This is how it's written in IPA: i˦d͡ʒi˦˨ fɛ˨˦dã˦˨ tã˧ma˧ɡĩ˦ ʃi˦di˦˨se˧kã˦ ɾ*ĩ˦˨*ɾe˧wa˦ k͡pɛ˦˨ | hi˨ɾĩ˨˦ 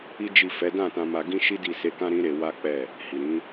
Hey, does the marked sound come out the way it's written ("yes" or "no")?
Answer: no